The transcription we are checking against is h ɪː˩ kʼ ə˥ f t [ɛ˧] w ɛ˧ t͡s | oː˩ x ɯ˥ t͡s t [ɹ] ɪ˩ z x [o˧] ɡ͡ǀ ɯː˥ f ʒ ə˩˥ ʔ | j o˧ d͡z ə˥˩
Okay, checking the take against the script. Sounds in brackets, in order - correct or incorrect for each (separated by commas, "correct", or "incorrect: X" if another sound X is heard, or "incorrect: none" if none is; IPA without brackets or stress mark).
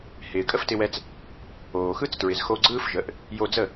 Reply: incorrect: ɪ˧, correct, correct